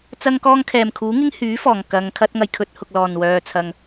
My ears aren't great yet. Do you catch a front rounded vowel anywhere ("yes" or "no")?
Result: yes